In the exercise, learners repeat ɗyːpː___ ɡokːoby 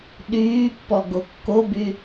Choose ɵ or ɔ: ɔ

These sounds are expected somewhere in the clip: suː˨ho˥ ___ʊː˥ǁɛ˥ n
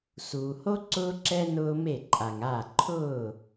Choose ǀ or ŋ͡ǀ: ǀ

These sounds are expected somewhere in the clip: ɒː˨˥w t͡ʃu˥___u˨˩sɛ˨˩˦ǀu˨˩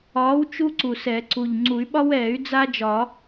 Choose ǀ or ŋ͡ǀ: ǀ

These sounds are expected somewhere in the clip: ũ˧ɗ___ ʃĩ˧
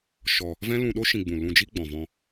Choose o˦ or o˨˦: o˦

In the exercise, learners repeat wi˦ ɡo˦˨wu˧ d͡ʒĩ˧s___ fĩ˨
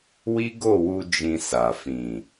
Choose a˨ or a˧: a˨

